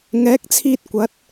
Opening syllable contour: rising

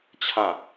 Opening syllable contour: falling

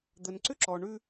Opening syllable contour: low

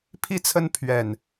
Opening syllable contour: falling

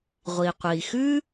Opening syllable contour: low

